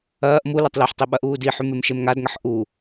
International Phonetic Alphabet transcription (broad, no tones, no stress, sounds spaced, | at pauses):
ɐː ʔ m u l ɐ tˤ l ɐ ħ tˤ i ɓ ɐ ʔ uː d i ħ ʉ m e m ʃ e m ŋ a d ŋ ɐ ħ ʔ u